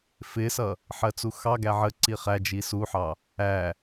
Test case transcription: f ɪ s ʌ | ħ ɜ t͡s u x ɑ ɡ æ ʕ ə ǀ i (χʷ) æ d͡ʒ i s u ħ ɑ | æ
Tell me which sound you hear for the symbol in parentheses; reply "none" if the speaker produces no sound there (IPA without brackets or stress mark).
χ